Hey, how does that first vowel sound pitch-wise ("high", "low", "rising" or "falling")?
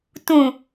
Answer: low